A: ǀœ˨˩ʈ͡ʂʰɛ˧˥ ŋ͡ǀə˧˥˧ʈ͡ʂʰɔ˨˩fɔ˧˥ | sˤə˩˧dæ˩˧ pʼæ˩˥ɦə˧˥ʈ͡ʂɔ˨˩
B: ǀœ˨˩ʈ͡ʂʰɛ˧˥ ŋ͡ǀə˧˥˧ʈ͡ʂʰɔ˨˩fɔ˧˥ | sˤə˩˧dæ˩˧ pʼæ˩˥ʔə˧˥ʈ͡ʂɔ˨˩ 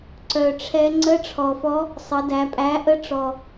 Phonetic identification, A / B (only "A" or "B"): B